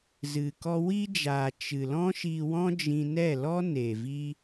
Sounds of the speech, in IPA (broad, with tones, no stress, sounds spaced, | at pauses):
z ɨ˨ k ɔ˧ w i˦ d͡ʒ aː˨ t͡ʃ ɨ˨ l ɔ̃˦ ʃ i˧ w ɔ̃˦ d͡ʒ ĩ˧ n ɛ˦˨ l ɔ˦ n e˨ v i˦